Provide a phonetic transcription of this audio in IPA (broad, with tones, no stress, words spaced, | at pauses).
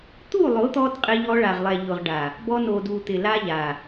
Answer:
t̪u˦˨lˠʊ˨˦t̪ɔ˧d qʼɪ˧ʎɔ˧ɭa˨ʁlˠɛ˨ ʎʊ˨ʁɖa˨ | bɔ˧no˨du˨ t̪ɪ˨la˧ ʎa˨